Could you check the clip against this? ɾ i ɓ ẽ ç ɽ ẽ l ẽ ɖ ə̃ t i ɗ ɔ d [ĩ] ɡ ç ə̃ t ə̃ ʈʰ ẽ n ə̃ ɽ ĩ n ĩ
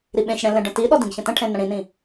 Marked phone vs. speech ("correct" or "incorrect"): correct